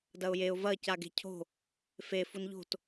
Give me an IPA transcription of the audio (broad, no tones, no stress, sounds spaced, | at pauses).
d ɐ ʊ̯ j e ʊ̯ v ɐ c a ɡ e̤ cʰ o̤ | f e f u n ʎ o̤ t